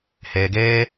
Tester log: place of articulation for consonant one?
glottal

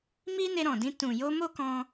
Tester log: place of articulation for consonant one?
labial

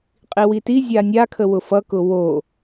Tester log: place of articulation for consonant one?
uvular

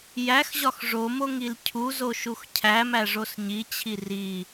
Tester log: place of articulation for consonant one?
palatal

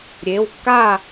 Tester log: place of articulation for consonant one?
alveolar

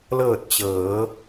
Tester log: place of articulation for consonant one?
alveolar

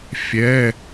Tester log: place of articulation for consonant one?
labial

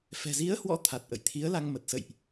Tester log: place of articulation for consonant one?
labial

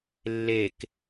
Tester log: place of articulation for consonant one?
alveolar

